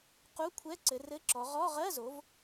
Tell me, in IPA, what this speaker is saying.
q u˧˥˧ kʷʰ ɛ˧˥˧ ǀ ɘ˩˧ r ɘ˧˥˧ ǁ ɔ˩˧ ʁ ɔ˧˥˧ ʁ ɜ˧˥˧ z o˩˧ v

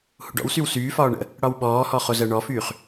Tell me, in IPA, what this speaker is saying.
h ṵ ɖ ɔ̰ w s y w s yː f ɒː ɳ ə̰ | ɽ ɒ w ɓ ɔː h ɔ χ o z ɜ ɳ ɔ f yː χ

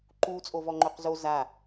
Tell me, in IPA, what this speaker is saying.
ǃ u t͡sʼ o v ɔ ŋ͡ǃ o q z o z a

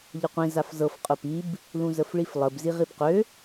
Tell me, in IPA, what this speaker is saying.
ʎ ə qʷ ĩ z a f z ɤ f qʼ ʊ p i b | l ũ z ə f ɭ i f lˠ ə b z i ʁ i b q ø

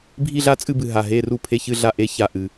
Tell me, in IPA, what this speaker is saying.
bʱ i˥˧ ɮ a˥˧ t͡sʼ ɨ˥˧ b ɨ˧˩ ɦ a˧˩ ɦ e˧˥˧ r u˥˩ pʰ e˥˩ ç ɨ˥˧ ɮ a˥˧ ʔ e˧˥˧ ç a˧˩ ʔ ɨ˩

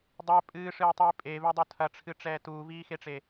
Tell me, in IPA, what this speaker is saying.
dˤ ɛ pʼ ɨː ʂ ɨː tˤ iː pʼ e v ɛ dˤ o tʰ ɐ ʈ͡ʂʰ ɨ ʈ͡ʂ ɛː t uː v iː x e ʈ͡ʂ e

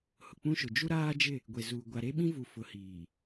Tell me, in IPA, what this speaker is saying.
h ʊ˨ k͡p ũ˦ ʃ ʊ˨ d͡ʒ u˦ ɾ aː˦ d͡ʒ ɪ˦˨ | ɡʷ e˨ z uː˨ ɡʷ a˨ ɾ e˦ ɓ ĩ˦ v u˨ f ʊ˨ h iː˨

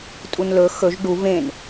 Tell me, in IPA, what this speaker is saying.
tʼ u n l ɵ x ɵ ʒ ɖ u v ẽ n

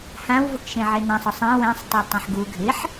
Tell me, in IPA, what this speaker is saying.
h ã w v ʊ k ʃ ẽ ʕ ɪ n ã sˤ ɔ sˤ ɛ̃ w ɛ̃ sˤ tˤ e tˤ ẽ ħ ɡ u ɡʱ ɪ ħ

